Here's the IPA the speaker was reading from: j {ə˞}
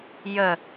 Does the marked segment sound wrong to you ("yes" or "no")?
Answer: yes